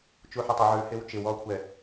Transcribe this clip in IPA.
t͡ʃuħɪtˤʊ ʕʉ hɪːwt͡ʃɪwɔːkʷʰɛ

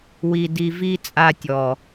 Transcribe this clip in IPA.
wi˨di˨vi˧ t͡sʼa˧tʲɔ˨

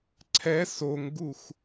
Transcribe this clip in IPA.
ǀʰɛ soŋɡux

